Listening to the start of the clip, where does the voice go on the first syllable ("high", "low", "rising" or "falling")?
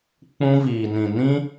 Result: high